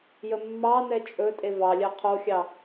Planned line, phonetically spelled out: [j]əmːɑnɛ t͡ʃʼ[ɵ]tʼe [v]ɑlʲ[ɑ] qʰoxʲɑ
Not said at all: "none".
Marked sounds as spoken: j, ɵ, v, ɑ

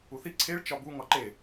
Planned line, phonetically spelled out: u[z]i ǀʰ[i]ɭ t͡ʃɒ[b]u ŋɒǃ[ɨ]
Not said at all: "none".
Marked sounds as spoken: θ, e, b, e

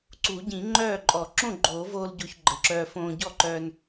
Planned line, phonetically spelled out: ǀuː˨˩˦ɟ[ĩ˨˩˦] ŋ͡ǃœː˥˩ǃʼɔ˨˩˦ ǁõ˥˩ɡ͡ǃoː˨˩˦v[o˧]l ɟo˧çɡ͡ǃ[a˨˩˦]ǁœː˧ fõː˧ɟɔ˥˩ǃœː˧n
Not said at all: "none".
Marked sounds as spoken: ĩ˨˩˦, oː˧, ə˨˩˦

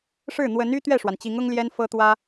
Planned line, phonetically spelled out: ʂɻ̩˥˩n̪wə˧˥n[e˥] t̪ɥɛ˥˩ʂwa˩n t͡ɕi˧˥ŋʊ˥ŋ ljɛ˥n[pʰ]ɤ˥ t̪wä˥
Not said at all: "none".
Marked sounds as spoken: y˥, f

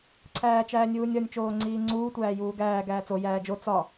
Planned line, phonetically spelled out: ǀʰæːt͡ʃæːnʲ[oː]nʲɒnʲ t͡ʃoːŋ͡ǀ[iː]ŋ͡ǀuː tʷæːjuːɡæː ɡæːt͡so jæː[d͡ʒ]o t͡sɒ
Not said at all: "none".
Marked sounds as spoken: uː, iː, d͡ʒ

